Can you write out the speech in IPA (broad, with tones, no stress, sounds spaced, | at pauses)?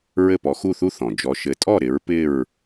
ɹ ɘ˥˨ p ɔ˨˦ x u˥˨ θ u˥ θ ɔ̃˩ d͡ʒ ɔ˨˦ ʃ ɘ˨˦ tʼ ɔ˥˨ ɾ ɪ˨˦ ɹ p ɪ˥˨ ɹ